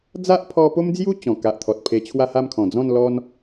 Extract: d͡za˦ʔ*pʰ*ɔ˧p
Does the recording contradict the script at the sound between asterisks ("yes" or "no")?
no